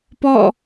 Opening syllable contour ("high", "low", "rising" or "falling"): falling